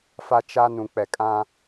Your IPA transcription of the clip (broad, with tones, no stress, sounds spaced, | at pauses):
f a˦ t͡ʃ a˦ n ũ˨ k͡p ɛ˨ kʼ ã˦